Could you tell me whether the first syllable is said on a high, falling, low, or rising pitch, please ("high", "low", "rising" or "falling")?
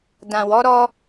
low